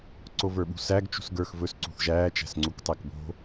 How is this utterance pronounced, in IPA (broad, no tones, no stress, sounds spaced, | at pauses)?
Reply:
ǀ o v ə˞ ɓ ṳ s æ ɡ t͡ʃ ṳ s ɡ ə˞ x v ɵ s ǀ ṳ θ ʒ æː t͡ʃ æ̤ s ŋ͡ǀ u k tˤ æ k b o̤